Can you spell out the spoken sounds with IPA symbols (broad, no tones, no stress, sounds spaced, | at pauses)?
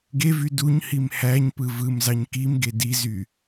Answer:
ɡ e v y d u ɲ h i m h æ ɲ p ɯ v ɯ m z ɑ ɲ k i m ɡ e d i z y